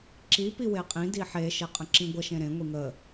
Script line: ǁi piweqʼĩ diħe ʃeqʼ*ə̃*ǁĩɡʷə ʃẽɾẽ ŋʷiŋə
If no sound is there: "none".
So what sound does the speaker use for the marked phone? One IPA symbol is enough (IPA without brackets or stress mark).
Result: ə̃